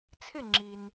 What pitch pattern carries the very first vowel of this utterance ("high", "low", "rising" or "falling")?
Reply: falling